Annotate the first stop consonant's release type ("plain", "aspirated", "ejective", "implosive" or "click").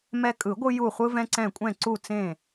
ejective